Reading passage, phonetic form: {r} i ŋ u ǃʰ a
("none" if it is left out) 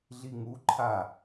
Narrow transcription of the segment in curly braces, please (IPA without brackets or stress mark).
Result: ɮ